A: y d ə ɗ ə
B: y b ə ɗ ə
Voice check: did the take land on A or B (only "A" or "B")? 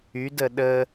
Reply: A